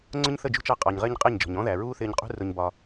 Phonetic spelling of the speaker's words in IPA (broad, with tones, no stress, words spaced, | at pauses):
ŋ͡ǀʊ˦ɲθə˦˨d͡ʒṳ˦t͡ʃɑ˧ qʼɑ˨ɲʁɪː˧ɲ qʼɪː˦˨ɲd͡ʒɔ̤˨ɲ ɔ̃˦ðæ˨ ɹuː˦θɪː˧ɲqʼṳ˦ rʊ˧ɲbɒ˧